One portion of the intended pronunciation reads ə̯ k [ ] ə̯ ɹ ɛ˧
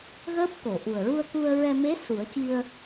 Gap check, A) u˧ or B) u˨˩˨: A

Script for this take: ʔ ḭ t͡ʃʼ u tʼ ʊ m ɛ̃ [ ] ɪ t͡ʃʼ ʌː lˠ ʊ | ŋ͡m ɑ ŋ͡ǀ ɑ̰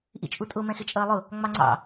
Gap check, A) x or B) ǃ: A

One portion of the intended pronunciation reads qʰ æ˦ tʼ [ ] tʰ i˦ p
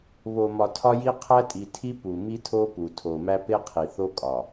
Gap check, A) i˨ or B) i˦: A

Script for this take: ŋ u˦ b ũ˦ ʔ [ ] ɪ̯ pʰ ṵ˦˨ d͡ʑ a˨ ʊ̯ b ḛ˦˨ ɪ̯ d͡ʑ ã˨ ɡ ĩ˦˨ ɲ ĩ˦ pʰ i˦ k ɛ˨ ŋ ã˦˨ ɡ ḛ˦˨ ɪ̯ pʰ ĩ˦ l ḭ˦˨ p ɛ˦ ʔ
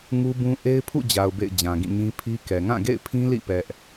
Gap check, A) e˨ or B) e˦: B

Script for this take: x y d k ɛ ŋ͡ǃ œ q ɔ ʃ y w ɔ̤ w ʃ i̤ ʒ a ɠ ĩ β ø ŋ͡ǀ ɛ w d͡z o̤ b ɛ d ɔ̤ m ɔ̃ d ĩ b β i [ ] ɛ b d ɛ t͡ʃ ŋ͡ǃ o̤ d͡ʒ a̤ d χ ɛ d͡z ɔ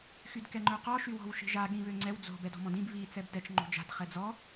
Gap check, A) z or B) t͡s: B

